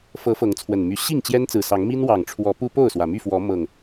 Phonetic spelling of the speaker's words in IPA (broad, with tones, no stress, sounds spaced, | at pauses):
f ɤ˨˦ f ɤ˨˦ ŋ t͡sʰ w ə˨˩ n m y˨˦ ɕ i˥˨ ŋ t͡ɕ j ɛ˦ n t͡s ɹ̩˨˩ s ɑ˨˦ ŋ m i˦ n w ɑ˨˩ ŋ ʈ͡ʂʰ w ɔ˨˦ p u˦ p o˥˨ ʊ̯ s w ä˩ m y˥˨ f w ɔ˨˦ m ɤ˨˩ ŋ